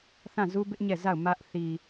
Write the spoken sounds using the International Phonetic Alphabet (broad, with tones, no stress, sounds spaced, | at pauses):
θ ã˦˨ z u˦ b ɪ˦ ʔ ɲ ɛ˦˨ z a˦˨ ʊ̯ m ä˦ ʔ θ i˨